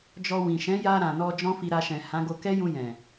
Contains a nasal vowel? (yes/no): yes